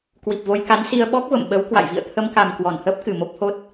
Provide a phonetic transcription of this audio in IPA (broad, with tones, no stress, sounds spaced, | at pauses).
k w i˨˩ p̚ v o˧ j k a˨˦ n s i˧ ə̯ ɓ ɔ˦˥ k̚ v ə̰˧˨ m ɓ ə˨˦ w k w a̰˧˨ j v ḭ˧˨ ə̯ t̪ʰ ə˧ m k a˨˩ m k w ɔ˧˩ n h əː˦˥ p̚ k ɨ˧˩ m o˦˥ p̚ h o˦˥ t̚